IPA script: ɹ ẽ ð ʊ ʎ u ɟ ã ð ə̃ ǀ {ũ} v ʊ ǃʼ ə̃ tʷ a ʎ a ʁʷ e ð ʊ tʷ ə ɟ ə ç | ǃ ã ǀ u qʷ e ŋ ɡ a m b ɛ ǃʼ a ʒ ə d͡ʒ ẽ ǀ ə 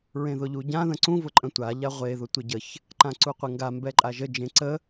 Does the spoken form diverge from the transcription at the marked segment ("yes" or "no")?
no